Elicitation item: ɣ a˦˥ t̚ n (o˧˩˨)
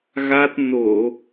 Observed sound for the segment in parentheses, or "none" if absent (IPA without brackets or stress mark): o˧˩˨